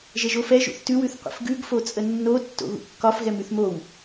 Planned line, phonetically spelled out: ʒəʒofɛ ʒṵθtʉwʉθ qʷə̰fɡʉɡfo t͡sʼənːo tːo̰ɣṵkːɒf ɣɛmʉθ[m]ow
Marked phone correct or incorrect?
correct